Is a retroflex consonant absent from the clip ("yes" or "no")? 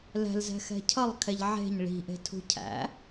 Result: no